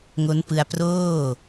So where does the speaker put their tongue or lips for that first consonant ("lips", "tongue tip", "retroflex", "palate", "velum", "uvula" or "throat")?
velum